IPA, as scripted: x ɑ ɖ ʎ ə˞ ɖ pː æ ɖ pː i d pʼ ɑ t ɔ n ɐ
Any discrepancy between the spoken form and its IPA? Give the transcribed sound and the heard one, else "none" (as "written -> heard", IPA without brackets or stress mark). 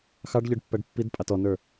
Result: ɐ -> ə˞